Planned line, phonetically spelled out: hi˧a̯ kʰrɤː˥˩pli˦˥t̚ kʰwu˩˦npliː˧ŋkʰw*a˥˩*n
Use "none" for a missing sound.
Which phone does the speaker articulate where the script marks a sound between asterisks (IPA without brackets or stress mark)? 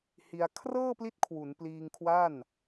a˥˩